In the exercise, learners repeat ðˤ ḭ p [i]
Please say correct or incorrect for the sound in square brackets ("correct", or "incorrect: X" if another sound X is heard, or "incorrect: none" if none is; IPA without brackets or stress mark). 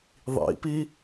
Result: correct